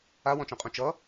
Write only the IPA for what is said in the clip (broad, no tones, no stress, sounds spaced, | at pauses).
a w ɔ̃ t͡ʃ ɔ̃ qʼ ũ t͡ʃ ʌ